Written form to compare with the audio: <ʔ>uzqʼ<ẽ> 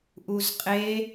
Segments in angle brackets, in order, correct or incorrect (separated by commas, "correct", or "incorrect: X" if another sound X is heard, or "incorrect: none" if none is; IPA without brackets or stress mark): correct, incorrect: e